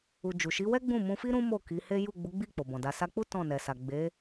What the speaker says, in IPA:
u˧ d͡ʒu˨ʃi˨˦wɛ˦ɡ͡bũ˦˨ mũ˧fi˦ ɾũ˦mo˦˨ ki˨˦he˦ ju˦˨ ɡ͡bu˨˦ɡ͡bi˦˨ k͡po˨bɔ̃˨da˧ sa˧k͡pu˦ tɔ̃˦˨nɛ˨sa˨ ɡ͡be˨˦

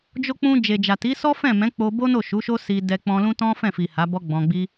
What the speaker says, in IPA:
d͡ʒo˧k͡pũ˧ d͡ʒe˨d͡ʒa˨ti˨˦ sɔ˦fɛ̃˦˨ mɛ̃˨˦k͡po˧bo˦no˦˨ ʃu˨˦ʃo˦si˧ dɛ˧k͡pɔ̃˧lũ˦ tɔ̃˦fɛ̃˦˨fi˨ ha˨˦bɔ˦ɡ͡bɔ̃˧ɡ͡bi˦

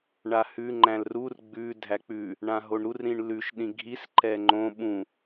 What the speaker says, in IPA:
ɳahʉ ŋ͡ǃæ̃lrur ɡ͡bʉ dʱæk͡pʉ | ɳãɦoɳɾur ɾĩɳlʉʃ ɗĩɡʱis ǃɛŋ͡ǃõ ɓũ

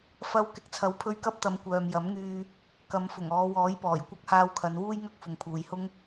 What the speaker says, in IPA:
fɐ˧w kɪ˨˥k̚t͡sʰɐ˨˥wpʰɵ˧ɥkɐ˥p̚ t̪ɐ˨˧mkʷœː˨m jɐ˨˥mŋyː˧ | kɐ˨˧mfʊ˨˩ŋɔː˨˧ wɔː˨˥jpɔː˨˩jkʷɐ˥k̚ haː˧wkʰɐ˨˧nwuː˥j ŋɐ˥k̚fʊ˨ŋpʰuː˨jhʊ˥ŋ

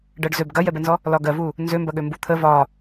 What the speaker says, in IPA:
ɖɜɖzøb ɡɐjɛbɛnzɔ | lɒɡɜvu | nzømbɐɠø mbut̪ʰə vɒ

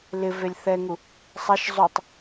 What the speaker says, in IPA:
lɪvelʲ θɛŋu | sˤaʃ zˤutˤ

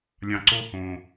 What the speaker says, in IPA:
lʲɑ̃˨ǀo˦˨hõː˨

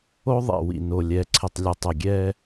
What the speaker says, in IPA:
o˦ðˤḛ˨ wḭ˨no˨ lʲɛ˨ǀʰɪ˨tˤlʲʊ˨tˤɛ˨ ɡʲɛ˦

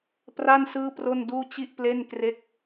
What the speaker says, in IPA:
pra˥˩nsɯː˥˩pro˥˩nduː˥˩ t͡ɕi˥˩ʔple˥˩nkre˥˩k̚

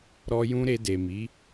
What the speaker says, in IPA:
ɾɔ˦jũ˦ ɾe˧de˨mi˨˦

